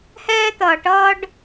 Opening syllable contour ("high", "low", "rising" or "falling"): high